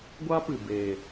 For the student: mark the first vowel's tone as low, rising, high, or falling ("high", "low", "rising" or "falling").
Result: high